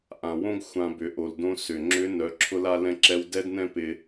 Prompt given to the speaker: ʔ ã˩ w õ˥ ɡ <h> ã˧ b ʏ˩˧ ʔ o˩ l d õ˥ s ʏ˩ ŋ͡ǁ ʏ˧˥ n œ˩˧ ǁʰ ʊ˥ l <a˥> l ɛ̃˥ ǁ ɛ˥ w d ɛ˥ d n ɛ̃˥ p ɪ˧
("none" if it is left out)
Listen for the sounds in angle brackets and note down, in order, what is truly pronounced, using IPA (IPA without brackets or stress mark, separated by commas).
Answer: xʷ, a˥